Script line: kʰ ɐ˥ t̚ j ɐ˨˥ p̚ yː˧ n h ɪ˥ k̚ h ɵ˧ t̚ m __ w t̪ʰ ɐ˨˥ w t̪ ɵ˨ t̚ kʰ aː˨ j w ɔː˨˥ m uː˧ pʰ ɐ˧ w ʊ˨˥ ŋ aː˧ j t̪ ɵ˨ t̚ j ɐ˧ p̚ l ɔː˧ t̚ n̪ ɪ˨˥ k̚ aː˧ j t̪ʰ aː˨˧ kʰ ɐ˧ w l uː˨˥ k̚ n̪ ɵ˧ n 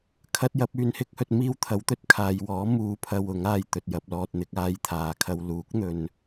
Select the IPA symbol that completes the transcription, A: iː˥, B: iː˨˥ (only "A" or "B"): A